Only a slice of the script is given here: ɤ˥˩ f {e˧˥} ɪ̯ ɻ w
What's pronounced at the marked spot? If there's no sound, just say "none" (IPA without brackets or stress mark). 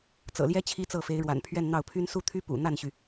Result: e˧˥